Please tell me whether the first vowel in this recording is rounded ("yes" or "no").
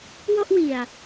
yes